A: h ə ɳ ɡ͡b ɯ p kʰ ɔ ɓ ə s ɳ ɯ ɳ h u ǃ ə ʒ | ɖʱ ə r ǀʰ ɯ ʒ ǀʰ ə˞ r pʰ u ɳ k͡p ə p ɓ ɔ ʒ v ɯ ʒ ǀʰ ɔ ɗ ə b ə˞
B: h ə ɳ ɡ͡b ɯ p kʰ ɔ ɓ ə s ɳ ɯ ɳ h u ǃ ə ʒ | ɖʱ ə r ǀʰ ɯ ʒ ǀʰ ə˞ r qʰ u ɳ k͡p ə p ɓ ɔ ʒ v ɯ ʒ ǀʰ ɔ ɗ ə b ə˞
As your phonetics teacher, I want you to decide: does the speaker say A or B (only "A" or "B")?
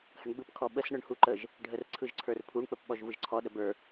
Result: A